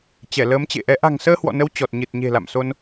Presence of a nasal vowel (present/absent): absent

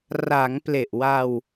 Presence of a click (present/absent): absent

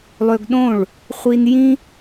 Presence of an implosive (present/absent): present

